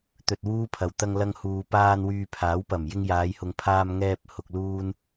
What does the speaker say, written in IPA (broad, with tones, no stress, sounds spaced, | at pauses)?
t̪ ɵ˧ t̚ w uː˥ pʰ ɐ˨ w t̪ ɐ˧ ŋ l ɐ˧ ŋ h uː˨ p aː˧ n w yː˧ pʰ aː˨˥ w p ɐ˨˩ m j ɪ˧ ŋ j aː˨˧ j h ʊ˨ ŋ pʰ aː˧ m ŋ ɛː˧ p̚ h ʊ˨ k̚ l uː˧ n